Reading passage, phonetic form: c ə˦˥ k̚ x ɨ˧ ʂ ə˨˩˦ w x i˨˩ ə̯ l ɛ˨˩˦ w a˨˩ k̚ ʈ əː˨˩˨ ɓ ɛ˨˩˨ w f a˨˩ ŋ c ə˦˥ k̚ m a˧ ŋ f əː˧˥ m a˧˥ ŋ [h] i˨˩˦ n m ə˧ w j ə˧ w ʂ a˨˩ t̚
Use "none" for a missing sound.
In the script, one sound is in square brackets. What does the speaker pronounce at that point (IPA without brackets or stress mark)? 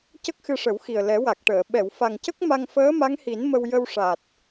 h